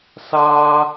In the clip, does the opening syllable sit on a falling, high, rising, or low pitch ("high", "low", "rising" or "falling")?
high